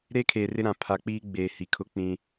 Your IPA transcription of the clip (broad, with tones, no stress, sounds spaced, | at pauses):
ɾ eː˦ kʰ eː˨ r ɪ˦ ɾ ã˨ pʰ a˨ k͡p iː˦ ɡ͡b eː˨ h i˨ kʰ ʊ˦ k͡p ĩ˦